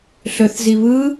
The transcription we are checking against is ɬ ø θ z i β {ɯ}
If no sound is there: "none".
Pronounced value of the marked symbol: ɯ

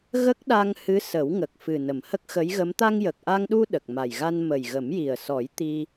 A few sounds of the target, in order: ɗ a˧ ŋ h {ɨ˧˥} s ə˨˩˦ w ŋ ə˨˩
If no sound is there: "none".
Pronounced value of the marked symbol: ɨ˧˥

